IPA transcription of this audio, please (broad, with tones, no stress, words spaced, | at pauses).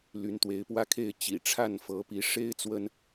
ly˨˦nt̪we˨˦ɪ̯pwä˦kʰe˥˨ɪ̯ t͡ɕḭ˨˩ʈ͡ʂʰa˥˨n fɤ˨˦pi˨˦ ʂe˦ɪ̯ t͡swə˦n